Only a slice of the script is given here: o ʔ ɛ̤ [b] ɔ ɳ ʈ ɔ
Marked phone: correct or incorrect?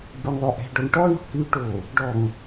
incorrect